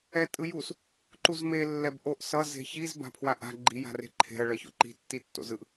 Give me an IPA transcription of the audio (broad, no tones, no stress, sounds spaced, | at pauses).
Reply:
ɛ tʼ ɯ j u s | ǃ u z m e lː ɛ b ʔ o ʔ s ʌ z e̤ ç i z b a̤ pʰ w a ʔ a̤ ɡ͡ǃ i j a̤ r e̤ ǃʰ e̤ ɐ̯ ɭ ʌ ç o̰ ǃ i̤ tː i tː o̰ z ɯ ʔ